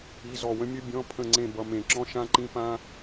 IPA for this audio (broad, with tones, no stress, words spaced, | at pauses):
i˧˥˧zɔ˦˨wə̃˥mʲɨ˥ bʲɔ̃˧˥˧pʰə̃˦˨ŋ͡ǀẽ˦˨ bʌ˧˥˧mẽ˦˨ǁɔ̃˥ ʃã˥ǃĩ˥pã˥